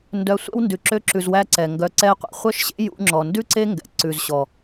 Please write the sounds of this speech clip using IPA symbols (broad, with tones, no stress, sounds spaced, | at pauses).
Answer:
n d œ˧ sʷ ɛ̰˦ w n d ʉ˨ ǁ ø˧ ǁ ʉ˨ z w æ˧ ǀ ɛ˨ ŋ ɡ œ˧ ǀ ɛ˦ qʷ ḛ˧ χʷ œ˦ ʃ ɕ ḛ˦ j ṵ˧ ŋ͡ǁ ɔ˨ n d ʉ˦ ǀ e˦ ŋ ɡ ɛ̰˨ ǀ ʉ˨ z ɕ ɔ˨